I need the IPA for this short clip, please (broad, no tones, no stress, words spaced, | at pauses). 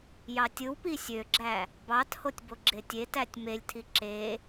jɑtʲɯwpi sʲøɡ͡ǁæ | bɑthotʲ boɡ͡ǁetʲetætʲ melʲtʰi ǁe